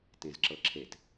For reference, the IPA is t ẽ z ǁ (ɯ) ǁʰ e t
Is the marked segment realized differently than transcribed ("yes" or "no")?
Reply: yes